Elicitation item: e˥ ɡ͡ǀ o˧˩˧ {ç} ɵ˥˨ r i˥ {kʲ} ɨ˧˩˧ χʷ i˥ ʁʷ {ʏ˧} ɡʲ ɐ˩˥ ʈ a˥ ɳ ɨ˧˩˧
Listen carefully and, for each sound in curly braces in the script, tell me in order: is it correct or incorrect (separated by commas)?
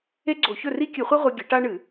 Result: correct, correct, incorrect